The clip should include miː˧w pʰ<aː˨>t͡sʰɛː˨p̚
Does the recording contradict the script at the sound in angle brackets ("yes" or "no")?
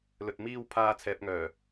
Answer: yes